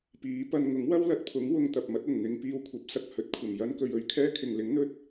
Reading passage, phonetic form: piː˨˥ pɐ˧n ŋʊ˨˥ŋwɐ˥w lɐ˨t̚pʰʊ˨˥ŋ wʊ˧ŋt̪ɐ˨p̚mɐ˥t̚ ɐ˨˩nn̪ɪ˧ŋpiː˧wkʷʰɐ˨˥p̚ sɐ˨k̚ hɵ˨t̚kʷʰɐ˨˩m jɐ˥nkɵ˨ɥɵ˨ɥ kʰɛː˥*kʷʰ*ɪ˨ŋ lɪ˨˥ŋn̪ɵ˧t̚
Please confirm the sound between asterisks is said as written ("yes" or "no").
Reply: no